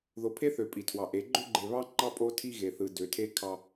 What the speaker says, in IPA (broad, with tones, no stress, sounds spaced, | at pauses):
ð o˨ pʰ e˦ θ ø˨ pʼ i˨ tʰ w ɑ˨ ʔ e˨˦ ɡ͡ǃ ø˦ ɡ͡ǃ e˨ β ɑ˦ ŋ͡ǃ ɑ˦ pʼ o˦ tʰ i˦ ɣ e˨ θ ɯ˨ d ø˨ tʰ e˦ kʰ ɑ˦